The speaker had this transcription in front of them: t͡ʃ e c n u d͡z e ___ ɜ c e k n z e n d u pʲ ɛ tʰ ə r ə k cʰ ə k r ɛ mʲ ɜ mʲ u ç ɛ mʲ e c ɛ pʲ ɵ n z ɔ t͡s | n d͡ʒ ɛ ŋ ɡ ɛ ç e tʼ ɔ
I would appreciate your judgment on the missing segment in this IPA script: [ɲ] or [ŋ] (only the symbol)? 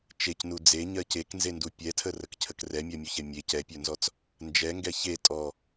ɲ